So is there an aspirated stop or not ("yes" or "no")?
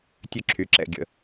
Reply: yes